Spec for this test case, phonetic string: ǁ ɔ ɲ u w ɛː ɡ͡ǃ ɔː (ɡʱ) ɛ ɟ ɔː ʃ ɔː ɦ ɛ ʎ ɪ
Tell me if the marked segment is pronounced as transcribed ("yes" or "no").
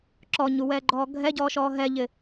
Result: yes